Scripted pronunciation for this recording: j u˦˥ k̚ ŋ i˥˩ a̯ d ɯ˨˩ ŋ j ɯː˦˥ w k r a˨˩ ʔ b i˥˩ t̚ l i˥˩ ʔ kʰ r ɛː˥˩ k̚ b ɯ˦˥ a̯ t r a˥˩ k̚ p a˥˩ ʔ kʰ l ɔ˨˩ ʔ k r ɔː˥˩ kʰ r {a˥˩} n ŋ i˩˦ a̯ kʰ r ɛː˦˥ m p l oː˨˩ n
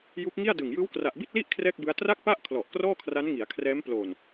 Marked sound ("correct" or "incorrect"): incorrect